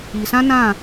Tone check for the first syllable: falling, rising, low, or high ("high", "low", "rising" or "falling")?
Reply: low